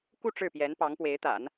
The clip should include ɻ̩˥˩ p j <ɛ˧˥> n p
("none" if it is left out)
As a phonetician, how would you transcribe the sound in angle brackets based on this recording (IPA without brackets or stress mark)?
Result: ɛ˧˥